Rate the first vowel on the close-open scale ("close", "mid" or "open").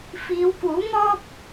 close